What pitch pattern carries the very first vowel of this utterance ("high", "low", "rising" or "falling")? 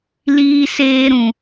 high